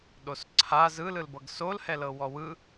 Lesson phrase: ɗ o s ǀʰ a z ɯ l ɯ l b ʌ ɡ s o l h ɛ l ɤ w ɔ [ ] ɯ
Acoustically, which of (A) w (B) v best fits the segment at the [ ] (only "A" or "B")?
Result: A